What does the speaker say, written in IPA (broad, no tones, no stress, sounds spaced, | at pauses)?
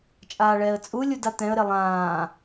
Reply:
t͡ʃʼ aː ɭ ɛː ə̯ t͡sʼ u lʲ u d a t̪ ɛ̃ ə̯ ɾ e lˠ ãː